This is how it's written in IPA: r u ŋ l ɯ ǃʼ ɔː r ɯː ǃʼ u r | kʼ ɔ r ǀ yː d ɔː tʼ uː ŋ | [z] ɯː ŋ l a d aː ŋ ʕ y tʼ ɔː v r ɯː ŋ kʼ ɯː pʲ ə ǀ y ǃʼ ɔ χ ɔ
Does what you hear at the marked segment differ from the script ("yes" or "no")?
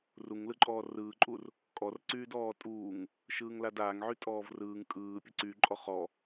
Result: yes